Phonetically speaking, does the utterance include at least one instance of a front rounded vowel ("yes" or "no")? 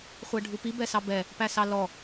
no